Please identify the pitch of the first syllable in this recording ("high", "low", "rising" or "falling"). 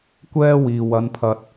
high